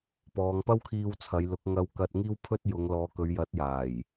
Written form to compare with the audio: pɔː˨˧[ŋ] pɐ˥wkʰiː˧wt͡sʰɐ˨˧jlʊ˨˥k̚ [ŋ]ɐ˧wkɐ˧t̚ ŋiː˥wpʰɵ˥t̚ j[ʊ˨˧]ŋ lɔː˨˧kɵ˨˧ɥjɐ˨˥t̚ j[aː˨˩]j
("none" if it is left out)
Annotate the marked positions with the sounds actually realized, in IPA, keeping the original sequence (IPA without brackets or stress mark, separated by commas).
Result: ŋ, ŋ, ʊ˨˧, aː˨˩